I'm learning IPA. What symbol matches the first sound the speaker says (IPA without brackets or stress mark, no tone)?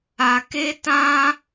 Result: a